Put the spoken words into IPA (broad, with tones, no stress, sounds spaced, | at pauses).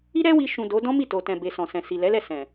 i˦ ɾ ɛ˦ w i˧ ʃ ũ˨ d o˨˦ d ɔ̃˦ m i˦˨ t o˨ t ɛ̃˨ b e˨ s ɔ̃˨ s ɛ̃˨ s i˨ l ɛ˨˦ l ɛ˦˨ s ɛ̃˨